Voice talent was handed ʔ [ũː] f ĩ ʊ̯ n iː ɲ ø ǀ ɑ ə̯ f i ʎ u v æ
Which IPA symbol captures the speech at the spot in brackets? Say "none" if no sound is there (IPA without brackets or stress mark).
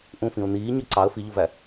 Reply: ũ